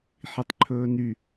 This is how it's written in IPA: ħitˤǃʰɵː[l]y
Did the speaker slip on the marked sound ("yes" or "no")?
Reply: yes